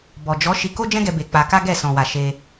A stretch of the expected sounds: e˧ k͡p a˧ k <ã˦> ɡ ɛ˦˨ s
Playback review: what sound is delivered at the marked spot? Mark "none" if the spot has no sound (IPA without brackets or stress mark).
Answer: a˦